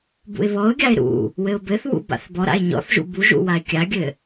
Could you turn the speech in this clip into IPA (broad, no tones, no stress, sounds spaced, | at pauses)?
b ṵ ɪ̯ β ɔ ʊ̯ ɡʲ a ɪ̯ ɾ ṵ | w ɘ ʊ̯ b ɘ θ w ṵ b a̰ θ b ɔ ɾ a̰ ɪ̯ ɲ ɔ̰ θ ʒ ṵ b u ʒ ṵ w a ɪ̯ kʲ a ɡʲ ɘ